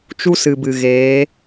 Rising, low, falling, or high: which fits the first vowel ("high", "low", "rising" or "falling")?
high